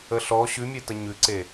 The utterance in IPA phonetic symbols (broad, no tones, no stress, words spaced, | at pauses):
əɬɔ ɕʉmʲetə ɲʉǀe